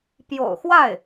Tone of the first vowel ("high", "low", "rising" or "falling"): low